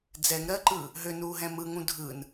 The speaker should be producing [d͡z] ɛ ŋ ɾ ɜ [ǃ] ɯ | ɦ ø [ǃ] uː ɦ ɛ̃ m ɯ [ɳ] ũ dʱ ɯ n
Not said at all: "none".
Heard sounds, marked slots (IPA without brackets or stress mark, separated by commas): d͡z, ǃ, n, ŋ